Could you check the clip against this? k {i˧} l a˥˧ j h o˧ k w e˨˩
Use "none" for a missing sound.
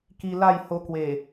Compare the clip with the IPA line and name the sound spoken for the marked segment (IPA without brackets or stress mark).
i˧